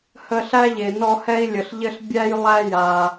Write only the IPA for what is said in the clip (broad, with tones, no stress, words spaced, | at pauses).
hə˦ɬæ˥ʎe˨nɔ˦ hɛ˦i̯lʲə˨ɬʎɘ˦ɬ bʲæ˥jlˠæ˦ ja˨